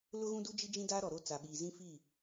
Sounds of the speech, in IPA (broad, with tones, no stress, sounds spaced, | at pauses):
l ʊ˦ ɣ ũ˦ d u˦ d͡ʒ i˦ d͡ʒ ĩ˦ d aː˦ ɾ ɔ˨ ɾ o˦ t͡s a˨ ɓ iː˨ z ĩ˦ f i˦˨